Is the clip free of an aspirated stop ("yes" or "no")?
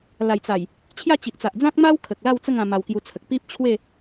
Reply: no